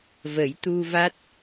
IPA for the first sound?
v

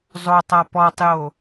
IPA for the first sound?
zˤ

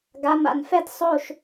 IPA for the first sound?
ɡ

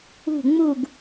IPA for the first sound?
ṳ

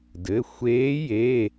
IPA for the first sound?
d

